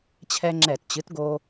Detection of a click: present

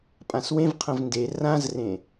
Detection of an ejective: present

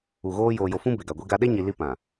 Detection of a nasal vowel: present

